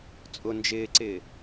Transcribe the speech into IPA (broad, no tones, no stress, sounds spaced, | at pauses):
t͡sʼ ʊ n d͡ʒ ɪː ǀ ɪː